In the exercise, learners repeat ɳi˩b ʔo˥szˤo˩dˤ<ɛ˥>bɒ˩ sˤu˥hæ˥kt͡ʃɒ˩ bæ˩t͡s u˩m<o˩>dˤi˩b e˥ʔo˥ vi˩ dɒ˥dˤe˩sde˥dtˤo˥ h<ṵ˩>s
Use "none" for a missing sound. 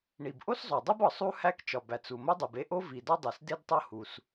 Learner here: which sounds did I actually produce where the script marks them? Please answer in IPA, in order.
e˥, o˥, u˩

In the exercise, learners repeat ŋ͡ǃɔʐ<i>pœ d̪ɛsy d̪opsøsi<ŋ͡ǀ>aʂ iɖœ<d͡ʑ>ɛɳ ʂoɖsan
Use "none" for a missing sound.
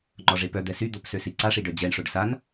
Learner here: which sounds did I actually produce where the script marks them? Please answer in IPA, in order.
e, ǀ, d͡ʑ

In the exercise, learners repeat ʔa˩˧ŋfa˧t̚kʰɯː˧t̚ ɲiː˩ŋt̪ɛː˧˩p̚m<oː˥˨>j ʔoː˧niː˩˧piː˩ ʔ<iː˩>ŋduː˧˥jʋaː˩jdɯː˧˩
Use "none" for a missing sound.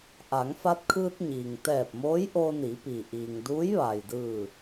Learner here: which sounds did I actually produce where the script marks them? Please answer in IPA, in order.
oː˧˥, iː˩

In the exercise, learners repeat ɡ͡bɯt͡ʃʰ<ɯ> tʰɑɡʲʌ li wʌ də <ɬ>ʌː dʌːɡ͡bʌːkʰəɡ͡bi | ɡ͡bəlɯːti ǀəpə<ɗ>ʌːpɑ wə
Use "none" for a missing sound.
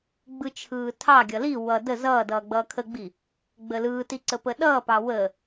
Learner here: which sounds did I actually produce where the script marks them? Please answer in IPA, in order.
ɯː, z, ɗ

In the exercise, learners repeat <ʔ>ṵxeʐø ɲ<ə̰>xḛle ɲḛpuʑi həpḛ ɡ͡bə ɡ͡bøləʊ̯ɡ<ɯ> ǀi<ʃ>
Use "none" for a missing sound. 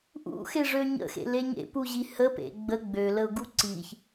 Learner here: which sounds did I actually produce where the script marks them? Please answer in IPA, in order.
ʔ, ə̰, u, ç

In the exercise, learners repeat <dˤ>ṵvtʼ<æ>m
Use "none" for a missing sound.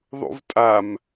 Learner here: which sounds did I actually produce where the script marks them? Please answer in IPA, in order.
ðˤ, a

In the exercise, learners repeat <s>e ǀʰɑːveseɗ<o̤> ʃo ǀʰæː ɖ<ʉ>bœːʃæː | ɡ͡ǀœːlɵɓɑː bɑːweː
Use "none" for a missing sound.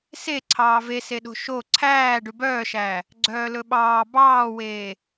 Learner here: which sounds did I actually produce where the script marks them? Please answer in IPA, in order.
s, o̤, ʉ

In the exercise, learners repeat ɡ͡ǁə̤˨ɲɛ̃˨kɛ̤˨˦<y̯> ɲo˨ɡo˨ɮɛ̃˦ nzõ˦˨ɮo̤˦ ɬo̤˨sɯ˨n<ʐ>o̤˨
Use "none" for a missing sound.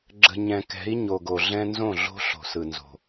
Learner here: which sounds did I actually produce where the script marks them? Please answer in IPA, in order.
i̯, z

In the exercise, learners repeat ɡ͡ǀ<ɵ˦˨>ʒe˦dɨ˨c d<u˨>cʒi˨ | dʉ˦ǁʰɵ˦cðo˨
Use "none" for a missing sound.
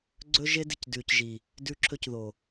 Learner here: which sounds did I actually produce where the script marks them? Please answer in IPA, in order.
ɵ˦, ʉ˨

